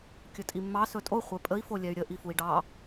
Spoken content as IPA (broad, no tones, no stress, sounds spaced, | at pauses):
kʲ ɵ tʼ i mː ɑ s ɵ tʼ o χʷ ɛ pʼ ə i̯ f o lʲ ɛ y̯ ɾʲ ə ʔ i f u i̯ ɖ ɑ